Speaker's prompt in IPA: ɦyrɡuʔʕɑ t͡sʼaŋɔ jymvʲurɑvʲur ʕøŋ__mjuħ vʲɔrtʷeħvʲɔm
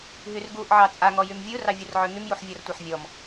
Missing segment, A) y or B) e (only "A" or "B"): A